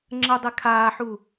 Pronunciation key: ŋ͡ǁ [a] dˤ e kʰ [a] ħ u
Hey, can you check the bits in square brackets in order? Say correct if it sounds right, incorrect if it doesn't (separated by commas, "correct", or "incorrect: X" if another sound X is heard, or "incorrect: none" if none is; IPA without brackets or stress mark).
incorrect: ə, incorrect: aː